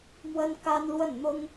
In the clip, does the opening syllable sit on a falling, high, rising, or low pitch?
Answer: high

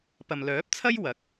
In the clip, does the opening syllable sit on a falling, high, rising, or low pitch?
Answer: low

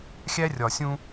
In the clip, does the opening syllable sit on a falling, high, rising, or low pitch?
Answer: high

